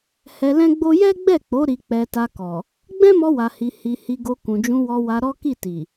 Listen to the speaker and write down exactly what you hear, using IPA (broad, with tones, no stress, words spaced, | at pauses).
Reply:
hɛ˧lɛ̃˦ɡ͡bo˦ jɛ˦ɡ͡bɛ˦˨k͡po˨˦ ɾi˧k͡pɛ˧ta˧kɔ˨ | ɡ͡bɛ̃˦mɔ˧wa˨ hi˧ hi˧ hi˧ɡo˧ kũ˨d͡ʒũ˧wɔ˧ wa˧ɾɔ˦ ki˦˨ ti˨